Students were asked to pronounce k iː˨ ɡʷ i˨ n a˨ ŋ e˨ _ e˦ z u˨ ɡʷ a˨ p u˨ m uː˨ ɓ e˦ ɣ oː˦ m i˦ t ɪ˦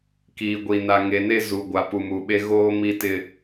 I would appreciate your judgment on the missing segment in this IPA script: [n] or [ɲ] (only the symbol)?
n